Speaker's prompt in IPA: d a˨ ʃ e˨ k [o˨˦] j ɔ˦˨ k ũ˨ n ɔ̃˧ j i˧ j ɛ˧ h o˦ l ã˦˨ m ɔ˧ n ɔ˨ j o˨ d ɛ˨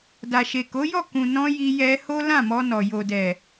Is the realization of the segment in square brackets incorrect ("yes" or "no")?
no